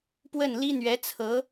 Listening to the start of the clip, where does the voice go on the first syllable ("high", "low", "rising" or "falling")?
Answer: falling